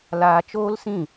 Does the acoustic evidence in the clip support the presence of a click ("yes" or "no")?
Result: no